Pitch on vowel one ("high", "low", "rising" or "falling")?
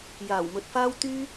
low